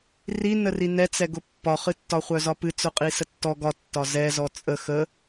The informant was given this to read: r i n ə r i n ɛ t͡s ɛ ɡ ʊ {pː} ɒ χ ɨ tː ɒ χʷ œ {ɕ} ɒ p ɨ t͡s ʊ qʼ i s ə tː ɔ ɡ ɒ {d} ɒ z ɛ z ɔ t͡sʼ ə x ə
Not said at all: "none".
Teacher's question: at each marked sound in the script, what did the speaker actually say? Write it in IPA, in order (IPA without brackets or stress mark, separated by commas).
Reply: pː, z, tː